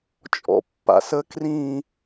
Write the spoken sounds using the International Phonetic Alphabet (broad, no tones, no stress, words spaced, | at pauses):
t͡ʃʼɔ̰pːa̰sə krĩ